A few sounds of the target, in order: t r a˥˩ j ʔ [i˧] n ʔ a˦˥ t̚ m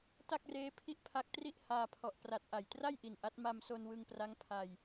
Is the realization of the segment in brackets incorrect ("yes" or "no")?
yes